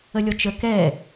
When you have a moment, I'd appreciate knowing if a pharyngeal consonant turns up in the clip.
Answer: no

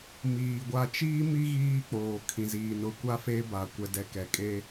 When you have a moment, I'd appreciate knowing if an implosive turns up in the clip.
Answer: no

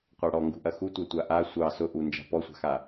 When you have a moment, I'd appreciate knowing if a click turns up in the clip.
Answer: no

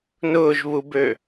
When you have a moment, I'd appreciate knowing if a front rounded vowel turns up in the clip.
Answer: yes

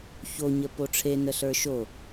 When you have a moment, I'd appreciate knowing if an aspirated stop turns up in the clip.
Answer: yes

